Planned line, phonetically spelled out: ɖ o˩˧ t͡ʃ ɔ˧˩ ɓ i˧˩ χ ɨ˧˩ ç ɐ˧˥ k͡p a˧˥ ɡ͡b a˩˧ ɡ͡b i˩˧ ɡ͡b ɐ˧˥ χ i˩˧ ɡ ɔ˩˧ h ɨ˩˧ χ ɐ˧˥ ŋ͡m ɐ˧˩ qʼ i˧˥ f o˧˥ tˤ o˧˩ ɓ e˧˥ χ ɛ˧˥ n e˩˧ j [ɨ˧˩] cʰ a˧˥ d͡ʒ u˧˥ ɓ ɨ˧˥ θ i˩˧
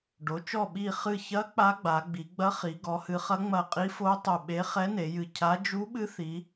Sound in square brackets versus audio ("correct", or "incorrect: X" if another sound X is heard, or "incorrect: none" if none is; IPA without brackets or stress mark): correct